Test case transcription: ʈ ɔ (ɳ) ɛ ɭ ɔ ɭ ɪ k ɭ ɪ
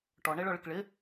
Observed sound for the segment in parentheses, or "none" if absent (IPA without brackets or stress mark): ɳ